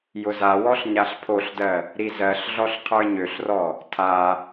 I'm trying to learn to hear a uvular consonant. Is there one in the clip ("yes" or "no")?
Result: yes